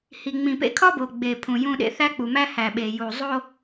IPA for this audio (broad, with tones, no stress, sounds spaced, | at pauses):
h i˨ ŋ͡m ĩ˨ p ḛ˦ kʰ ɒ˦ b o˨ ɡ͡b e˨ pʰ ũ˨ j ũ˦ ɗ ḛ˦ θ æ˦ k͡p u˨ m æ˦ h æ˨ ɓ e˨ j u˨ zˤ o˦